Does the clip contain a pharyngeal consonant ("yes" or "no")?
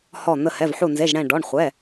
yes